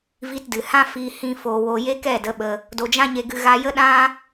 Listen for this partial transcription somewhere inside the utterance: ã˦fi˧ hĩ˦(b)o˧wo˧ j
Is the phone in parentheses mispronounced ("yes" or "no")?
yes